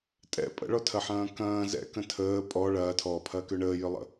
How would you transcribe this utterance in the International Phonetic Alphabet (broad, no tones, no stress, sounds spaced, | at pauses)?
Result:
tʼ ɛ̰ pʼ ə̰ ɭ ɔ tʰ ɐ ħ ɐ̃ː k ɐ̃ː z ɛ̰ k ə̃ tʰ əː pʼ ɔ ɭ ɐː tʰ ɔː pʰ ɐː k ø ɳ əː j ʏ lˠ ə̰